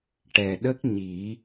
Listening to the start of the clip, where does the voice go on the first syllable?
low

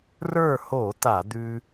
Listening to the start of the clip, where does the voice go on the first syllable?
falling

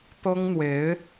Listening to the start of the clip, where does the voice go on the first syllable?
high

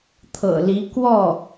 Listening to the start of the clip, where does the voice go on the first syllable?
low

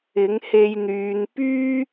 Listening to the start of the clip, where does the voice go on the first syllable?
rising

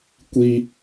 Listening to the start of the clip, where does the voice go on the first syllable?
high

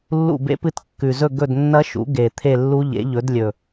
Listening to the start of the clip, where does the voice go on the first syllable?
falling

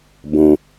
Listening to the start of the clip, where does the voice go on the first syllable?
low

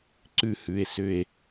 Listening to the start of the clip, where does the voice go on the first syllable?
falling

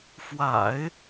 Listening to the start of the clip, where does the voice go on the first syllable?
low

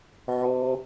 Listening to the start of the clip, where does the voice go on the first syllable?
high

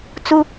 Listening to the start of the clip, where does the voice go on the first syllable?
high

